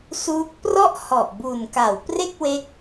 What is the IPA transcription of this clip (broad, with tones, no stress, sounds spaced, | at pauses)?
s uː˦˥ k̚ p r ɔ˥˩ ʔ h ɔ˨˩ ʔ b u˨˩ n k a˩˦ w p r e˥˩ k̚ w e˦˥ k̚